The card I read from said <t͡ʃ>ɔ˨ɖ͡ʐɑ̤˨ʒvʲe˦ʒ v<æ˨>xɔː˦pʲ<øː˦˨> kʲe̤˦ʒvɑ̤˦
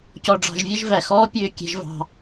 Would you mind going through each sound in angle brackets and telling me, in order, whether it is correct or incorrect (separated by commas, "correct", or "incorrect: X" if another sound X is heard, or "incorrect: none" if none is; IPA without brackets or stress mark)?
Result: incorrect: c, correct, correct